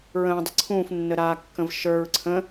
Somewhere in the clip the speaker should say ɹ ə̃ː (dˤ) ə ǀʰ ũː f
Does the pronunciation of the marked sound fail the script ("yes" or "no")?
no